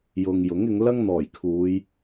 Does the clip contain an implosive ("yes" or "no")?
no